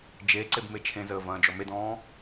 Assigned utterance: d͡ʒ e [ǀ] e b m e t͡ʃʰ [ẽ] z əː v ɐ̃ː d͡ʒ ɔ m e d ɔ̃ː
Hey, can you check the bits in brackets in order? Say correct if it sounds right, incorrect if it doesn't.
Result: correct, correct

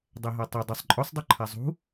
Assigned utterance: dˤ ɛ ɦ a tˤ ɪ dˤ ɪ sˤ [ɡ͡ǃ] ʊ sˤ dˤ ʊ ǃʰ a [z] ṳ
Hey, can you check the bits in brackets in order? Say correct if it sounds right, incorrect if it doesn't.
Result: incorrect, incorrect

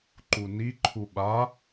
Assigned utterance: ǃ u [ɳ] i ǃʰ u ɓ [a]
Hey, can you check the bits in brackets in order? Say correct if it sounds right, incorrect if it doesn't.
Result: incorrect, correct

